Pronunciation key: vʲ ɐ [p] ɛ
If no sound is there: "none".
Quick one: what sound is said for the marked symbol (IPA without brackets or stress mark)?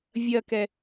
k